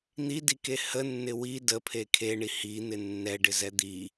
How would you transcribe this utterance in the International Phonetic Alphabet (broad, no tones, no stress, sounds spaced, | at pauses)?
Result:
n̪ i d i k e h ə nː ɪ w i d ə pʰ e kʰ e ɳ i h i n̪ ɪ nː ɛ ɖ ɪ z ɛ d̪ i